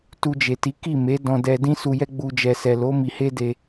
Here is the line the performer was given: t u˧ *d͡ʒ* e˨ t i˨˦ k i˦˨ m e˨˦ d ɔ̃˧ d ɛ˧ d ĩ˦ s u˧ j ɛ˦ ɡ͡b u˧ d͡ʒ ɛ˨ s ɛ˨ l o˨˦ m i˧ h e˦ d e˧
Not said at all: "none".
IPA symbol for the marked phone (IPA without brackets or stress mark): d͡ʒ